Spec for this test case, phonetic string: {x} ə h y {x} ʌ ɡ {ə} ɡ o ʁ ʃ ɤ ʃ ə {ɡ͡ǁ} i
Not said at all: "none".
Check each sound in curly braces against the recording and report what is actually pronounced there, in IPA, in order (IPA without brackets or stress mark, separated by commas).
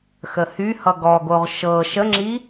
x, h, ɔ, ŋ͡ǁ